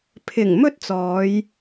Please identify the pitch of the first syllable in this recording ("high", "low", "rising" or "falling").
low